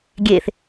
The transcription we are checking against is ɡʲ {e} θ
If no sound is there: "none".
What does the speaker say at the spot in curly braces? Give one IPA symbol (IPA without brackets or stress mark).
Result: e